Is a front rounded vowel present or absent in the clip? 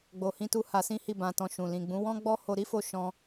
absent